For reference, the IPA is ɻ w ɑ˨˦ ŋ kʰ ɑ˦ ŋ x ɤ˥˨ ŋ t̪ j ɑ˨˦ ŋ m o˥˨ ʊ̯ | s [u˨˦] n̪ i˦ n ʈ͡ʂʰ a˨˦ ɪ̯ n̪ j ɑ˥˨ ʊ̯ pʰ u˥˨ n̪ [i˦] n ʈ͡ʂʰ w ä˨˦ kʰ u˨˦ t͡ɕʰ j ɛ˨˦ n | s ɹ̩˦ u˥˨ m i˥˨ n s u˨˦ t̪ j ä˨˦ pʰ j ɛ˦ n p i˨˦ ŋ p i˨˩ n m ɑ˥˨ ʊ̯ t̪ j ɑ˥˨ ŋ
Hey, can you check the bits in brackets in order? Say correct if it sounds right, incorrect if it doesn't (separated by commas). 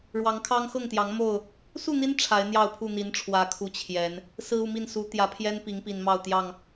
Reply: incorrect, incorrect